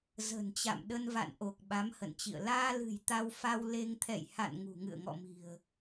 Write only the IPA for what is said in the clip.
z ə̤˨˩ n t͡ɕ a̰˧˨ m ɗ ə˧ n v a̰˧˨ n ʔ o˨˩ k̚ ɓ a˨˦ m h ə̰˧˨ n t͡ɕ ḭ˧˨ ə̯ l aː˧ l ɨ̤˨˩ j t̪ a˧ w f a˧ w l e˧ ŋ t̪ʰ ɛ̰˧˨ j h a̰˧˨ n ŋ ṳ˨˩ ŋ ɨ̰˧˨ ə̯ ŋ ɔ̰˧˨ m i̤˨˩ ə̯

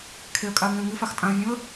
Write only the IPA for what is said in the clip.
kʰ e ə̯ kʼ a ə̯ ŋ ĩ ə̯ ŋ ɨ f a x tʼ ã ə̯ vʲ ũ ə̯

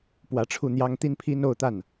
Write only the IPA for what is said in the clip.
p w ä˧˥ ʈ͡ʂʰ u˥˩ n̪ j ɑ˥ ŋ t̪ i˥ n pʰ i˥ n o˥˧ ʊ̯ t̪ a˥˩ n

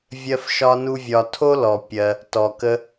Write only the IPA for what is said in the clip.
vʲ ɜ˦ f ʃ ɒ˦ n u˦ vʲ ɒ˧ tʰ o˦ l ɔ˨ pʲ ɜ˧ | t ɔ˨ k ə˦

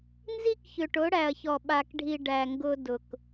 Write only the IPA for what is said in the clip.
n z i˦ k ç ʏ˨ ʈ ʊ˨˦ ɽ æ˨ ɐ̯ ç ɔ˨ ɓ a˨ k ɖʱ i˨ ɖ æ˨ ŋ ɡ ʊ˦ d ʊ˨ k

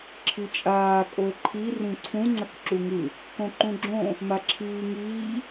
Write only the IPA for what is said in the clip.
ǁʰ i t͡ʃʼ aː kʼ o ə̯ ǃʰ i r ĩ ǀʰ ũ ŋ͡ǀ ʌ k ǁ u ŋ ɯ | k õ ǃ ũ ɡ͡ǁ õ | m a ǁʰ iː ŋ iː

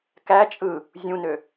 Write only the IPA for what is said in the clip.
k æ t͡ʃʼ ɯ | zʲ ũ n ø

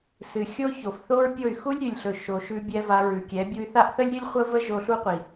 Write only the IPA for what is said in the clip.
s ɨ˨ xʲ o˦ ç o˨ f θ o˦ ɹ pʲ o˦˨ y̯ x u˦ lʲ ɾʲ ʉ˨ lʲ ɬ ɵ˨ ʃ o˨ ʃ ʉ˧ bʲ ɛ˧ v a˧ ɹ ʉ˨ kʲ ɛ˨˦ bʲ u˧ y̯ θ a˦ ʔ θ ə˦ lʲ ɾʲ ɨ˦ lʲ χʷ ə˦ v ə˦ ʒ o˧ ɬ u˦ qʷ i˨

